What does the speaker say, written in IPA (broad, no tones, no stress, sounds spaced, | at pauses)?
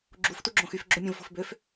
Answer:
ɡ͡ǁ u f t u ɡ͡ǁ õ x y f ɡ͡ǁ o mʲ õ v f o̤ f b ø f